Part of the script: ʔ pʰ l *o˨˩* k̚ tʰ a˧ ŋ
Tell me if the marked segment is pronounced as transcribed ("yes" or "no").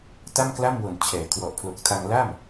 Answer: yes